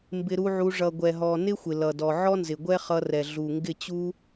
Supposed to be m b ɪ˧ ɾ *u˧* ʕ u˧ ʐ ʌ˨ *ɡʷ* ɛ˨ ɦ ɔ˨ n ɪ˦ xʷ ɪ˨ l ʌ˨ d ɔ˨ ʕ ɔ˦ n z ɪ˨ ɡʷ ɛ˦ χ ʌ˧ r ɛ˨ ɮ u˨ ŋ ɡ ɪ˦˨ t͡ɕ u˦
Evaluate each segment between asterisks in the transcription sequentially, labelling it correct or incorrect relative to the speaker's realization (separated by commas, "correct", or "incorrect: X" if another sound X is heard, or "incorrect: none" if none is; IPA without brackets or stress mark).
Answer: correct, correct